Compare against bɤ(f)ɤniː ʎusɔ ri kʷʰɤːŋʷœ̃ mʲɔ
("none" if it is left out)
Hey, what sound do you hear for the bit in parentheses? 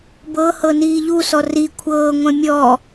h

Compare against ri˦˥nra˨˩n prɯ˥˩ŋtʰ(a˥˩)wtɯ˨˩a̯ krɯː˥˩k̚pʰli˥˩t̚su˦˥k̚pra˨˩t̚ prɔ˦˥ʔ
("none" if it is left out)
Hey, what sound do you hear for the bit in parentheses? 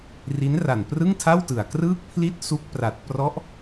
a˥˩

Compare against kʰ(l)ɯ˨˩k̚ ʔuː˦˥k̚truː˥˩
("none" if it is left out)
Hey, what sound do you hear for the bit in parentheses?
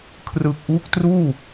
r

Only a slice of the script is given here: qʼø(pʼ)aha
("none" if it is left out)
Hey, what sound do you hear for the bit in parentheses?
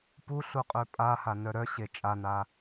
pʼ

